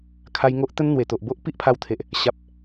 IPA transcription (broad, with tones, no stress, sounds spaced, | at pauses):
kʰ a˧ j ŋ o˦ ʔ t̪ ə˦ n n̪ w e˨˩ t̪ o˨ ʔ b o˦ ʔ p i˦ ʔ pʰ a˧ w t̪ʰ e˨ ʔ | ɕ a˨ p̚